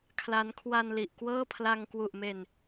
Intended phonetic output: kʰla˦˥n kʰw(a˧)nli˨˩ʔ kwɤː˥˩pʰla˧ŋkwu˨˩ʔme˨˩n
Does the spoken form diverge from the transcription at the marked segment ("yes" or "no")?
no